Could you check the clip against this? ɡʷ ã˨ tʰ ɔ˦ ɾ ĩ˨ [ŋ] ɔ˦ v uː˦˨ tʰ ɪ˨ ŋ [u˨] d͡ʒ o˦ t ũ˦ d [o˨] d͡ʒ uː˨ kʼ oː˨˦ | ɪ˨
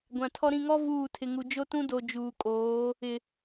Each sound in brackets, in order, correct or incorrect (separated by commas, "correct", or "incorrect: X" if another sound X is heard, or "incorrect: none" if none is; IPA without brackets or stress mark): correct, correct, correct